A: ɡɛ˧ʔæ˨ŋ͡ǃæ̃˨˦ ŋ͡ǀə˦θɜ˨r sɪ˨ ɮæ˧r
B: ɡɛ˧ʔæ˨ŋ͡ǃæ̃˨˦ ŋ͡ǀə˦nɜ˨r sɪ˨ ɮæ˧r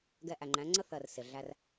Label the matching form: A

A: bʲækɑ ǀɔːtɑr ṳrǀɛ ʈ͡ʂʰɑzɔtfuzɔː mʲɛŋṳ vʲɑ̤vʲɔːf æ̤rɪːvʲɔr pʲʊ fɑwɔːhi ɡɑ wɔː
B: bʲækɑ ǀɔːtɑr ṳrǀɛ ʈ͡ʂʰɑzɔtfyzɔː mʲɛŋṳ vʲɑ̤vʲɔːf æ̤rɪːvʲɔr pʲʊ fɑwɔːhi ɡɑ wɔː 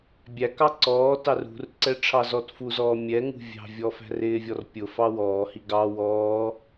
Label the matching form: A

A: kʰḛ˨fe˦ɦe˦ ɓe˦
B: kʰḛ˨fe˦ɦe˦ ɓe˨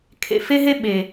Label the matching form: B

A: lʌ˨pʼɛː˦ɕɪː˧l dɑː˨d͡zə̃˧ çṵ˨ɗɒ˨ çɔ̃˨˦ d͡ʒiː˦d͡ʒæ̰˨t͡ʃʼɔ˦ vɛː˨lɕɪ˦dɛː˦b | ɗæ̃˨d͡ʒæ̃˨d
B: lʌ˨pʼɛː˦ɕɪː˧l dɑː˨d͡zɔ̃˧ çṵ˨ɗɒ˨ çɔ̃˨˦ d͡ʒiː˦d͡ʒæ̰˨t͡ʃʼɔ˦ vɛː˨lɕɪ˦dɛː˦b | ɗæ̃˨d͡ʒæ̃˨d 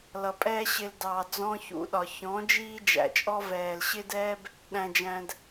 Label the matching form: B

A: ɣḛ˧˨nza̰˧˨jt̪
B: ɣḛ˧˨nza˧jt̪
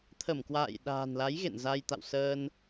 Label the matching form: B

